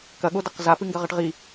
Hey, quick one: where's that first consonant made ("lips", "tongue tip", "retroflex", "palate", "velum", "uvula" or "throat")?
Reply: velum